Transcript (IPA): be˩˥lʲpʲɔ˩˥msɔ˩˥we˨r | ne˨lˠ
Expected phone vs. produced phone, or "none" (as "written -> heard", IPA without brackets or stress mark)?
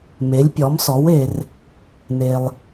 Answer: b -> m